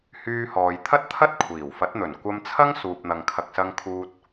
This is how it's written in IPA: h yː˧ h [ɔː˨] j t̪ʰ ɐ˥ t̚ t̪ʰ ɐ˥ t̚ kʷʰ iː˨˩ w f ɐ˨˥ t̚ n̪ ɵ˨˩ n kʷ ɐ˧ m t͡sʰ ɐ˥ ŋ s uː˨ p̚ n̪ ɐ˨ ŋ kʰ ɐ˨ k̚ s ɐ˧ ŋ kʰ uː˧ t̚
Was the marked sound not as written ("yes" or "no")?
no